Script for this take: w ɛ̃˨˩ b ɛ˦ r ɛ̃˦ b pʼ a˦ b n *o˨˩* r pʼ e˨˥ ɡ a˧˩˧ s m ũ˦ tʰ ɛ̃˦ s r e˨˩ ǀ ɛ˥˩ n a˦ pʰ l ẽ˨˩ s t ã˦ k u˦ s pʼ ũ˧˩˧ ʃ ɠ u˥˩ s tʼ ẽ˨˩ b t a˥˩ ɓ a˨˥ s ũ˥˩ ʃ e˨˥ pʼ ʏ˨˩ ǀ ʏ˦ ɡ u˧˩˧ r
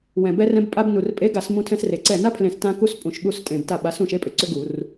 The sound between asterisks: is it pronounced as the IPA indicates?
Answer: no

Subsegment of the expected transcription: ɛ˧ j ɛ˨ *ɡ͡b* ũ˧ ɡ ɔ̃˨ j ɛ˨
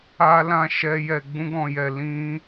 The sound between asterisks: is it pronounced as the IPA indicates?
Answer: yes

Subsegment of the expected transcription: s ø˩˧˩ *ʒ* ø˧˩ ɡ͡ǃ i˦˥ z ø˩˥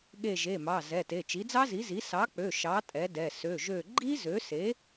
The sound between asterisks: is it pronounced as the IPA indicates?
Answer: yes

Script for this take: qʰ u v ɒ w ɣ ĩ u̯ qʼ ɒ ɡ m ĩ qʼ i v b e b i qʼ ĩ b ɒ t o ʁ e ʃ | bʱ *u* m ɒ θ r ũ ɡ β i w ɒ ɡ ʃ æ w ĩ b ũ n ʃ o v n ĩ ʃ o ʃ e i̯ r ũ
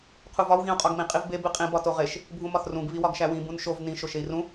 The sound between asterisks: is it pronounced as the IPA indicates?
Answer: no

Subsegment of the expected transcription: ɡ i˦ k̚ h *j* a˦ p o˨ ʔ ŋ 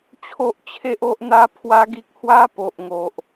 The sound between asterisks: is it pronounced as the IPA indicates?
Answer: no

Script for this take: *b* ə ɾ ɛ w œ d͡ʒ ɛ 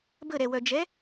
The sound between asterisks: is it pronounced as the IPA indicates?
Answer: yes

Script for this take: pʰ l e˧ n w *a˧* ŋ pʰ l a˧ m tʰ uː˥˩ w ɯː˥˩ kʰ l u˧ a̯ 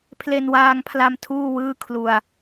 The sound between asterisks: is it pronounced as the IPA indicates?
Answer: no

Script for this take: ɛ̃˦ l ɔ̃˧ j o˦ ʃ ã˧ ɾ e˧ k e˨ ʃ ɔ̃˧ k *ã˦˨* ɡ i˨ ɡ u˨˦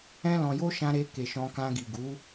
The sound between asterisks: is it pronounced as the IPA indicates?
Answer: no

